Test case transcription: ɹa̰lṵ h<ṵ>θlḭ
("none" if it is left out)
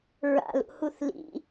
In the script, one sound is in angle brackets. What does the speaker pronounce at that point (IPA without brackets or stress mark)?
u